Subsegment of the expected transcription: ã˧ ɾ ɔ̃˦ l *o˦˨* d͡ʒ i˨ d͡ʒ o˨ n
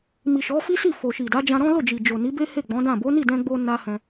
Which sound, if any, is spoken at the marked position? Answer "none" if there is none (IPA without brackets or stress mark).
o˦˨